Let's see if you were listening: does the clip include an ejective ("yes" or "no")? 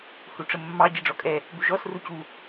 yes